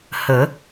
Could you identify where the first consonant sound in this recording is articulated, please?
glottal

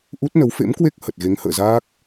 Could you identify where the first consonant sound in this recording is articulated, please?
glottal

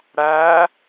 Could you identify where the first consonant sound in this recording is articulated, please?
retroflex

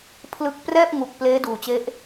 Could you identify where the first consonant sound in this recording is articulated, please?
labial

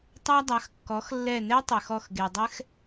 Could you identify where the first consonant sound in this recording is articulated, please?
alveolar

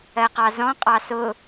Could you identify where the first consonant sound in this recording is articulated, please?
uvular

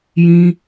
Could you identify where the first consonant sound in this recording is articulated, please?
palatal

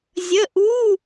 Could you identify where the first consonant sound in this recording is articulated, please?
alveolar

